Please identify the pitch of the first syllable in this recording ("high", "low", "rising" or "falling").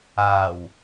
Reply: low